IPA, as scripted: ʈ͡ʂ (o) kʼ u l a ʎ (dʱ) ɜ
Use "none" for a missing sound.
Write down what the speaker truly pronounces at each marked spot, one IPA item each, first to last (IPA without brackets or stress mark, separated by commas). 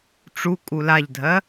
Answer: u, dʱ